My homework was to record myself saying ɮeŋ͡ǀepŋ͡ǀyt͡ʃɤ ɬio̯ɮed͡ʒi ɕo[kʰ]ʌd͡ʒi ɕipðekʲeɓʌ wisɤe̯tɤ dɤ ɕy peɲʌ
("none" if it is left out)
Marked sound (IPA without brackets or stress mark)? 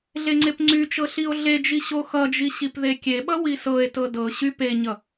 x